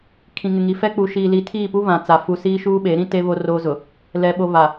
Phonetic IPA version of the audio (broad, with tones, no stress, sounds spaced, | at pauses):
kʰ ĩ˨ ŋ ɪ˨ ŋ i˨ f ɛ˦ k͡p u˨ ʃ iː˨ l i˨˦ tʰ iː˦˨ p u˦ β ã˨ t͡s a˨ f u˨ s iː˦ ʃ uː˦ ɓ e˨˦ ɾ ĩ˦ t e˦ β o˦ r oː˦ z ʊ˨ | l ɛ˨ ɓ o˨ β a˨